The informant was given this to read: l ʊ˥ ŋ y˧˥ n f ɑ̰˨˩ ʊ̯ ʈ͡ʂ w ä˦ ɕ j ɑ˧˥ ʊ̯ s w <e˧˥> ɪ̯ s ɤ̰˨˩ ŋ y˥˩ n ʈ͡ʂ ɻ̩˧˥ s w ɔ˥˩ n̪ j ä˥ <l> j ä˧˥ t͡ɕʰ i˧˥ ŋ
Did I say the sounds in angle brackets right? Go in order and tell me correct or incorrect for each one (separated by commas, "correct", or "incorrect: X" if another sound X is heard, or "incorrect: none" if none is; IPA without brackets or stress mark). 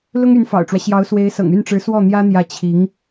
correct, incorrect: n̪